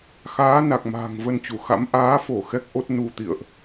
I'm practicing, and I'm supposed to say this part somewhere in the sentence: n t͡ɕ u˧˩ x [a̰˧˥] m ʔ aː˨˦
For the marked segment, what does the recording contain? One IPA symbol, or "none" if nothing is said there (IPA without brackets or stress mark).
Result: a̰˧˥